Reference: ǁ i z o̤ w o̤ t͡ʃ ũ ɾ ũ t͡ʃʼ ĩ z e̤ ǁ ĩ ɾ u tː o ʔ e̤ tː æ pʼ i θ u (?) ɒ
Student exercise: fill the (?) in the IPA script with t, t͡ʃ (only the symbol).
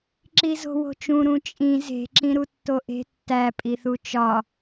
t͡ʃ